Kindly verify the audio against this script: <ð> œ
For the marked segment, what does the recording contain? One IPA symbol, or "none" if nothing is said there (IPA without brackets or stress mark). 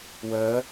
w